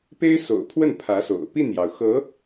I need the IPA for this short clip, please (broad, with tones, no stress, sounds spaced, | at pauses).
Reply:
p e˥ ɪ̯ s o̰˨˩ ʊ̯ pʰ w ə˥˩ n pʰ ä˧˥ s o̰˨˩ ʊ̯ p i˥˩ n j ɑ˩ ʊ̯ x ɤ˧˥